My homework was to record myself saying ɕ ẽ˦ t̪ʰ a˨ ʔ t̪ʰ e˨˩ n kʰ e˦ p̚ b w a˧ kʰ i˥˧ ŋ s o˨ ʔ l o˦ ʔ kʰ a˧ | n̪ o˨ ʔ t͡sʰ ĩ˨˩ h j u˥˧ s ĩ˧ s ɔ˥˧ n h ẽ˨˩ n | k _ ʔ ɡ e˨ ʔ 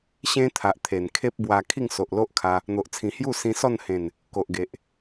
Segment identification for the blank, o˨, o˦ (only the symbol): o˨